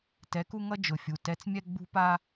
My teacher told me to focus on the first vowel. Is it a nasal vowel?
no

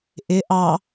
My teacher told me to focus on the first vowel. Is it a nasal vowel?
no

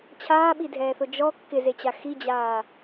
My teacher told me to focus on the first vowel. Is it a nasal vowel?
no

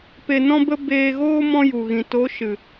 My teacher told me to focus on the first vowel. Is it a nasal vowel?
no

